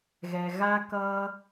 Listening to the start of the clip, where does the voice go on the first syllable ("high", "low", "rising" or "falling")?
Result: low